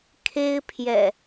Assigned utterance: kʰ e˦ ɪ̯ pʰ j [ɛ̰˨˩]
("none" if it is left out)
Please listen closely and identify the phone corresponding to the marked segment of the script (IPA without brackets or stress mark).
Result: ɛ̰˨˩